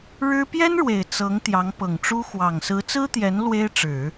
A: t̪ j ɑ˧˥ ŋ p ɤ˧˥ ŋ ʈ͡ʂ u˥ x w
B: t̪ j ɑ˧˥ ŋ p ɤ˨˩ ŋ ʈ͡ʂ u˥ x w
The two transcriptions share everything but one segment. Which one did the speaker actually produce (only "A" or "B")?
B